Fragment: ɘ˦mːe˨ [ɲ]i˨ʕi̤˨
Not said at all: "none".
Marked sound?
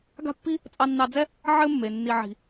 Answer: nː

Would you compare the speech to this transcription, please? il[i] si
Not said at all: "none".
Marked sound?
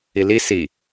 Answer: i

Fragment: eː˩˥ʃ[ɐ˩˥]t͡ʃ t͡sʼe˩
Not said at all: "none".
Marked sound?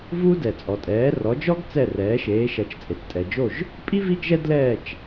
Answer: ɐ˩˥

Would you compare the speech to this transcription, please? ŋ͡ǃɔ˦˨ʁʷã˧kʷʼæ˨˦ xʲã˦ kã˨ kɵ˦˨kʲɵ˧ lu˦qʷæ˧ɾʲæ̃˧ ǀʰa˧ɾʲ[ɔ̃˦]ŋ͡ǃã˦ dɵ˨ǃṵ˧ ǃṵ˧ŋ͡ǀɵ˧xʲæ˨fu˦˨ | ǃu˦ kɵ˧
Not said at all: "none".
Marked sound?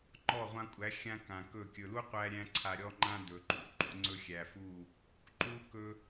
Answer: ɔ˦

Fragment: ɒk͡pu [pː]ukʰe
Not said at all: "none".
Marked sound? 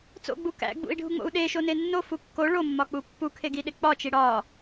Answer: pː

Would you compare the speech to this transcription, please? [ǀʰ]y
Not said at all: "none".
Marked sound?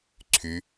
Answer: ǀʰ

